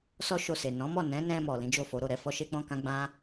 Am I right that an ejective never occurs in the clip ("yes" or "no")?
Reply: yes